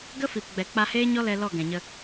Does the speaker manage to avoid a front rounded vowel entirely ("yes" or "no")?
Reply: yes